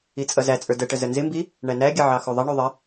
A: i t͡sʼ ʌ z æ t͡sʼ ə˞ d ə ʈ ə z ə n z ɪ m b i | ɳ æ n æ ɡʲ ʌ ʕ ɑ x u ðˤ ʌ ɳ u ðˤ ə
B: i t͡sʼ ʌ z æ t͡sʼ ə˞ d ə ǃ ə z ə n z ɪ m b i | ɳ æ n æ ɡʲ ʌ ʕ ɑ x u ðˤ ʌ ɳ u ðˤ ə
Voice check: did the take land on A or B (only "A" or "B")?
A